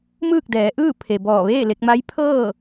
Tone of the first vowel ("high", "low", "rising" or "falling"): falling